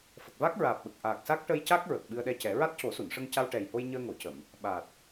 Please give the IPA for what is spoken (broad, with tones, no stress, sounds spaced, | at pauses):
f ə˨˩ k̚ v a˦˥ k̚ ɹ aː˨˩ p̚ ɓ ə˨˩ k̚ ʔ aː˨˩ k̚ s a˦˥ k̚ ʈ ə˧ j c a˦˥ k̚ ɹ ə˨˩ k̚ ɓ ɨ˧ ə̯ ɗ ɛ˧ c ɛ˨˩˦ ɹ a˦˥ t̚ c o˨˩˦ s u˨˩˨ n ʂ ə˧ ŋ c a˧ w ʈ ɛ˨˩ j h o˧ j ɲ əː˧ ŋ o˨˩˨ c ə˨˩˨ m | ɓ a˨˩ t̚